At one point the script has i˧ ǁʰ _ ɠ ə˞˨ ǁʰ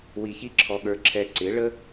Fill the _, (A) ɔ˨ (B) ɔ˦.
A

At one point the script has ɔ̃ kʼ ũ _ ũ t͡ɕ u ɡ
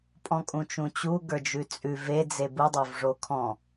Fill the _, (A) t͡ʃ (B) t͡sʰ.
A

